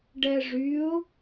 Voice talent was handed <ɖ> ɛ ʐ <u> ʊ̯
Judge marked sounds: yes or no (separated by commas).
yes, no